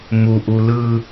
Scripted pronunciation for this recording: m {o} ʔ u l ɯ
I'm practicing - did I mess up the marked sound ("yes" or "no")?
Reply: yes